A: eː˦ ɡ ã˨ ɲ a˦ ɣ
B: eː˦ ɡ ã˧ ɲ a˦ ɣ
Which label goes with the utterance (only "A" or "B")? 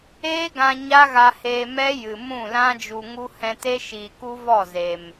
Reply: B